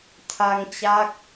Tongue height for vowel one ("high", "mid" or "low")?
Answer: low